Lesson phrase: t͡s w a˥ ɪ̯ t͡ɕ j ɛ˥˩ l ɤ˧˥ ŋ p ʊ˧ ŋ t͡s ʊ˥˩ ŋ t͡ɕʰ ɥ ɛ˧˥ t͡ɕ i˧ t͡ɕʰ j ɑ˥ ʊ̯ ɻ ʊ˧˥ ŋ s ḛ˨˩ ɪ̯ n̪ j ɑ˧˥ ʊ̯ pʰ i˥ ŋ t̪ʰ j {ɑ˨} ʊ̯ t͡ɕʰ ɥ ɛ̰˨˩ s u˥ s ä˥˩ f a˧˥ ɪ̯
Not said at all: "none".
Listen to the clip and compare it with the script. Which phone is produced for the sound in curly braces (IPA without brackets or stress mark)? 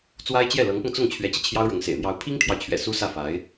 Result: ɑ˨